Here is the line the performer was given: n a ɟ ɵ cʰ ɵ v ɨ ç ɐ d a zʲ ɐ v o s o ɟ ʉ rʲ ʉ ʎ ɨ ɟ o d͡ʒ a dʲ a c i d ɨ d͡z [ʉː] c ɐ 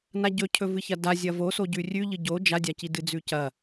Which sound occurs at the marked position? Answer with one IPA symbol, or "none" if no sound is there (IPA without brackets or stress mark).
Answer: ʉ